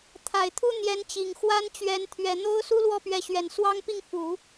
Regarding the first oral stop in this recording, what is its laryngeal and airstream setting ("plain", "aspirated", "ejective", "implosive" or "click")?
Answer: aspirated